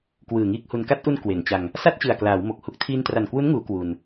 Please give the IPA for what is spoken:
k w ɯː˨˩ ŋ iː˦˥ k̚ h u˧ n k a˦˥ t̚ ʔ u˧ n k w e˩˦ n t͡ɕ a˧ ŋ | s a˥˩ t̚ t͡ɕ ɯ˨˩ a̯ k l aː˩˦ w m o˨˩ k̚ h u˦˥ k̚ tʰ iː˧ n t r a˨˩ n k w u˦˥ n ŋ uː˩˦ k w u˧ n

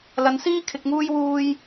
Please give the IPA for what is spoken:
l ɐ˨˧ n s iː˥ kʰ ɪ˧ k̚ ŋ uː˥ j w uː˥ j

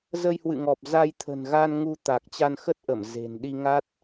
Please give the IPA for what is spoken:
z ə˧ j h w ɨ̰˧˨ ŋ ɔ˨˩ p̚ z a˧ j t̪ʰ ə̤˨˩ n ɣ a˧ n ŋ u˧ t̪ a˨˩ k̚ t͡ɕ a˧ n x ə˦˥ t̚ ʔ ə˧˩ m z e̤˨˩ n ɗ i˧ ŋ a˦˥ t̚

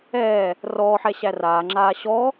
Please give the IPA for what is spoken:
ɛː | r ɔː ħ ɛ ɕ æ r aː ŋ͡ǁ aː ɕ ɔ

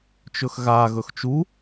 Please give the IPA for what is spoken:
t͡ʃ ɵ x ɣ a ɣ ɵ x t͡ʃ u

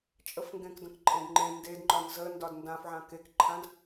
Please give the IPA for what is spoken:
t͡ʃʼ ə f ŋ ɡ ẽ k d ə̃ k ǃʼ ẽ d ŋ͡ǃ ẽ n d e d ŋ͡ǃ ɒ n z ə n d ɒ d n d ã f ʕ ã k e k ǃʰ ã d

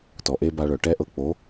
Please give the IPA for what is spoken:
t ɔ˨ ʔ e˧ b a˧ ɭ œ˨ ʈ ɛ˦ ʔ ɤ˧ k͡p o˨˦

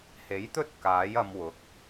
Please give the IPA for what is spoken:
h e˨˥ j t̪ ɵ˥ t̚ k aː˨˥ j ɐ˧ m w ʊ˨˥ k̚

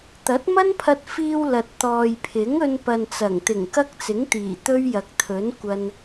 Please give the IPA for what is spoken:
t̪ ɐ˨˥ t̚ m ɐ˥ n pʰ ɐ˧ t̚ f iː˧ w l ɐ˨ t̚ t̪ ɔː˨ j pʰ ɪ˨˥ ŋ ɵ˧ n p ɐ˨ n t͡s ɐ˨˩ ŋ t̪ ɪ˨˩ ŋ k ɐ˥ k̚ t͡s ɪ˨˥ ŋ t̪ iː˨˩ t̪ ɵ˥ ɥ j ɐ˨ k̚ t̪ʰ ɵ˨˥ n kʷ ɐ˧ n

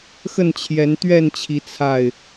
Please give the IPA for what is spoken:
x ə˥˨ n t͡ɕʰ j ɛ˨˦ n t̪ ɥ ɛ˥˨ n t͡ɕʰ i˨˦ t͡sʰ a˥˨ ɪ̯

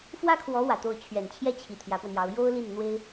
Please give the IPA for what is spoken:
f w ä˥ kʰ w ɔ˧˥ w ä˨˩ t̪ o˥˩ ʊ̯ t͡ɕʰ ɥ ɛ˨˩ n t͡ɕʰ j ɛ˥˩ t͡ɕʰ i˨˩ t̪ʰ j ä˧˥ p w ə˧ n j ɑ˧˥ ʊ̯ j o˥ ʊ̯ l i˥˩ n n̪ w e˥ ɪ̯

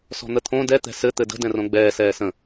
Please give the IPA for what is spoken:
s ɔ̤ n̪ ə t̪ʰ õ d ɛ t̪ ɛ̤ s ɘ t̪ ɘ d ə̤ d ɛ̃ r õ ɡ͡b ɛː s ɛː s ə̃

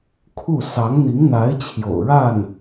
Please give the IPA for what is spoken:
kʰ u˥˩ s ɑ˧˥ ŋ n̪ i˧˥ ŋ n̪ a˧˥ ɪ̯ t͡ɕʰ j o̰˨˩ ʊ̯ ɻ a˥˩ n

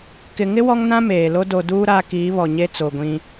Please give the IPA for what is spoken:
k ɪ˨ ŋ ɪ˦ w ɔ˦ ŋ n ã˦ m eː˨ l o˦ d o˨ d uː˦ ɾ a˦ k iː˨˦ β ɔ˨ ɲ e˦ t͡s o˨ ɡʷ ĩ˦

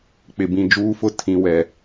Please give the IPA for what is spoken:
k͡p ɪ˨ b ĩ˨ d͡ʒ uː˦ f ʊ˦ tʰ ĩ˨ w ɛ˨

